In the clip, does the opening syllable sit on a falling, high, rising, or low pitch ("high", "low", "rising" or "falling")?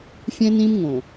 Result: high